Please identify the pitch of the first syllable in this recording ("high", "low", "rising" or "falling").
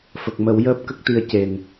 low